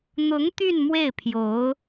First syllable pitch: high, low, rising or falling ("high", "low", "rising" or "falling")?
rising